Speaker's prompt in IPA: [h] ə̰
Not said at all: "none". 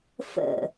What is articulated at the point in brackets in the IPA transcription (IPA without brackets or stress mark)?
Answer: f